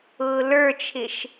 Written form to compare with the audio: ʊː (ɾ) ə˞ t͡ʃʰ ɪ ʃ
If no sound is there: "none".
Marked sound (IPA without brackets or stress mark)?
l